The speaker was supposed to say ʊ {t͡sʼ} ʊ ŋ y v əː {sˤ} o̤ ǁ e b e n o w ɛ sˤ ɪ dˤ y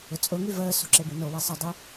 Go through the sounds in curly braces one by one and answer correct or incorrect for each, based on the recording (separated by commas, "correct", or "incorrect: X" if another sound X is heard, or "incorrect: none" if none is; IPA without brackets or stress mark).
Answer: correct, incorrect: s